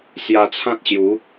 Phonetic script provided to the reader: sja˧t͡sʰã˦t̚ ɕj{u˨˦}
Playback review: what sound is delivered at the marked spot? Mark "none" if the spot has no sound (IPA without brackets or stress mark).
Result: u˨˦